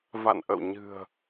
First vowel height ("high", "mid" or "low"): low